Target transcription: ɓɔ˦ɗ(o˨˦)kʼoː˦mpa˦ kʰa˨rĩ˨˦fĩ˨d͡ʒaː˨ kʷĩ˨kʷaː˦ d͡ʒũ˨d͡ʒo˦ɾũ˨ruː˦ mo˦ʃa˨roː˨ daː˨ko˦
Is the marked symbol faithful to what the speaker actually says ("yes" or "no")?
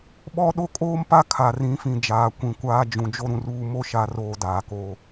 no